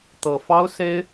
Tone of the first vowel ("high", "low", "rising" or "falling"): low